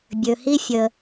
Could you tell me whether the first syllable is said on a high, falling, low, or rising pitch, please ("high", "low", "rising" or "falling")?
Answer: low